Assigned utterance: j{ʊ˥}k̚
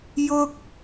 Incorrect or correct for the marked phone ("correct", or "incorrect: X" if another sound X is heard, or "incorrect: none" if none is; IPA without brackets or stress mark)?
correct